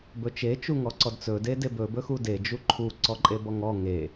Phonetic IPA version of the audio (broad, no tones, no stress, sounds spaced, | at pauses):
b ɵ t͡ʃ e t͡ʃ u ŋ ɔ ǀ ɔ d t͡s ɵ d e d e b ɵ b ɵ x u d e d͡ʒ u ǃʰ u ǀ ɔ ǃʼ e b ɔ ŋ ɔ ŋ e